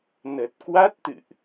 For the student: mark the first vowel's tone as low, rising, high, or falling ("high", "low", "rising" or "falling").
low